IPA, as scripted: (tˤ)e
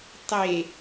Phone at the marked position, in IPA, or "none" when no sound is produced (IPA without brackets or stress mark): tˤ